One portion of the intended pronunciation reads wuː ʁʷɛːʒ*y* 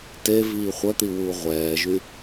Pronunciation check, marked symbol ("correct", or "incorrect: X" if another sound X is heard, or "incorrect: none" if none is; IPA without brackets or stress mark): correct